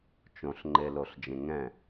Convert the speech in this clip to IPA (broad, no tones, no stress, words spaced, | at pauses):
t͡ʃõɬŋ͡ǃeloɬd͡ʒẽ ŋɛ̃